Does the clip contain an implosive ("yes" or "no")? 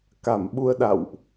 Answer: yes